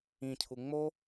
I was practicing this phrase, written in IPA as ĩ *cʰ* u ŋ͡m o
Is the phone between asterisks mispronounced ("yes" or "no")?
no